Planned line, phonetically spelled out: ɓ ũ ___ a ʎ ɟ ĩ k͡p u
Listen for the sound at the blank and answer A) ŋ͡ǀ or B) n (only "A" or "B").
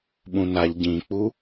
B